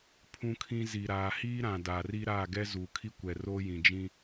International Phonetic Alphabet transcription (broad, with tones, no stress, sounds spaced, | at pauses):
pʰ ũ˦ kʰ ĩ˦ z i˨ ɾ aː˨ h iː˦ ɾ ã˨ d aː˨ r i˦ ɾ aː˦˨ ɡ ɛ˦ z uː˨ kʰ i˦ kʷ ɛ˨ r oː˦ j ĩ˨ d͡ʒ ĩ˦